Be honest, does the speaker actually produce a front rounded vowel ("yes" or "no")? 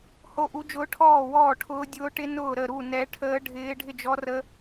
no